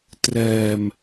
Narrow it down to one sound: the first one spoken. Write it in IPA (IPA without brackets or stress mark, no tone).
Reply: t